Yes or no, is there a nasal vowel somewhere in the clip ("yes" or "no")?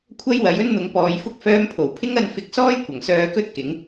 no